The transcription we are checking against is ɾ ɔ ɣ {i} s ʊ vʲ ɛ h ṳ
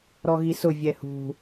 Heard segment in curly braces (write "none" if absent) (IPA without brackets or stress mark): i